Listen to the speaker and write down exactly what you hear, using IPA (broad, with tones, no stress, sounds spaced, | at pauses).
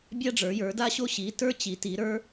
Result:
bʲ a˥ ɖ͡ʐ ə˞˨˦ j ə˞˨˦ d a˥ ɕ o˥ ɕ i˨˦ t ə˞˥ t͡ɕ i˨˦ t i˨˦ ɾ ə˞˥